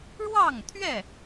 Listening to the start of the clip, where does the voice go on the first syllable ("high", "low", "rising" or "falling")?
falling